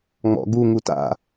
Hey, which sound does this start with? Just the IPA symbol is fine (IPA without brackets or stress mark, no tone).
ŋ͡m